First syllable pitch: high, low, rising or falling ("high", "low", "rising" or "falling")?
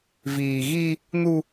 low